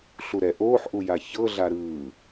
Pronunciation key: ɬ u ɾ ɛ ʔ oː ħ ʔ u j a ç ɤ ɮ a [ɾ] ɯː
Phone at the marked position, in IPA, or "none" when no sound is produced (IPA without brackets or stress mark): ɾ